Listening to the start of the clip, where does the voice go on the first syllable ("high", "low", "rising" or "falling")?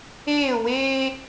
falling